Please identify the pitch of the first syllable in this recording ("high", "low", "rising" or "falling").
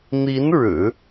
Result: rising